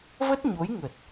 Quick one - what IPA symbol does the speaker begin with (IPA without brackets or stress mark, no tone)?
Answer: v